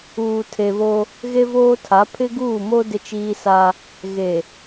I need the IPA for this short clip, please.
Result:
uː˨ tʰ e˨ β o˦ | ɣ e˦ v oː˦ tʰ a˨˦ pʰ ɪ˦ ɡ uː˦˨ m o˦ d ɪ˦ t͡ʃ iː˦ s a˦ | ɣ e˨

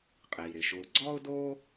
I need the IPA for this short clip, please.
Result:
qʼ iː˩ ɾ ɪ˩ ʃ ʊː˨ ɡ͡ǀ ɔ˥ ʊ̯ d oː˥

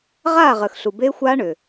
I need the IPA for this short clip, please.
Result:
ʁ aː˥˨ ʁ əː˨ x ɬ u˨ b eː˦˥ xʷ aː˦˥ ɳ ʏː˨

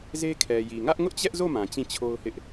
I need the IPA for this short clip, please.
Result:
z e˦ kʰ ɛ˨ j i˨ ŋ ä˦ ʔ ŋ ʊ˦ ʔ t͡ɕ ɛ˦ ʔ z o˦˨ m ã˨ t͡ɕ ĩ˦˨ t͡ɕʰ o˦ ʊ̯ h ɪ˦ ʔ

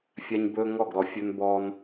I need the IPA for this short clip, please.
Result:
fʲ a˦ ɲ b ɵː˦ ŋ ɔ˦˨ ɡ ɾ ɔ˨ fʲ ɵ˦ n b ɔː˦ n

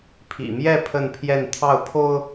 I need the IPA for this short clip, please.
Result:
pʰ ḭ˨˩ m j ɛ˥˧ pʰ ə˥˧ n pʰ j ɛ˥˧ n t̪ʰ ɑ˥˩ ʊ̯ pʰ o˥ ʊ̯

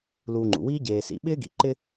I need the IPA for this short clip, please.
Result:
l uː˨ ŋ͡ǃ ṵ˩ w iː˦ ɟ eː˨ s ḭ˨ ɓ ɪː˥ ɡ ḭ˨ ǃ ɪ˥

